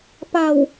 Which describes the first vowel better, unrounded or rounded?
unrounded